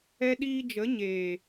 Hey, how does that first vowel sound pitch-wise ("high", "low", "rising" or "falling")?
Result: high